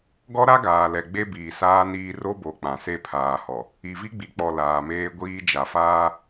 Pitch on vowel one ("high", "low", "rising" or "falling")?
high